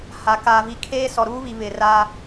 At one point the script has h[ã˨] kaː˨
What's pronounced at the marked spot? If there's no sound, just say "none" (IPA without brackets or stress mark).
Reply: a˨